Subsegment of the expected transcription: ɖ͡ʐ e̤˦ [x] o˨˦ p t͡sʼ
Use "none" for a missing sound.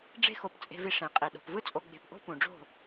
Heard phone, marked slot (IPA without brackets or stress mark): x